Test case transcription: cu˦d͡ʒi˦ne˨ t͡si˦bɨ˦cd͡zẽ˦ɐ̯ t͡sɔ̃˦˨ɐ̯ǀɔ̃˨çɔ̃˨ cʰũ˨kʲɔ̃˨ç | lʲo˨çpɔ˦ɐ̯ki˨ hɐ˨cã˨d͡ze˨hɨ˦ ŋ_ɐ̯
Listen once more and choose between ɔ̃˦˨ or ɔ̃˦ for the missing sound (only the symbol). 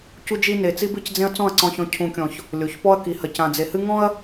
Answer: ɔ̃˦